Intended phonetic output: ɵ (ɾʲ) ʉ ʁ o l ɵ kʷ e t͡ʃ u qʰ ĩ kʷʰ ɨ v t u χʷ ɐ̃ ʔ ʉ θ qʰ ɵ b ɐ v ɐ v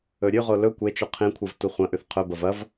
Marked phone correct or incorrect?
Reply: correct